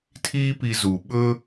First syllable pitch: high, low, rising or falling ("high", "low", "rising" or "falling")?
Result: high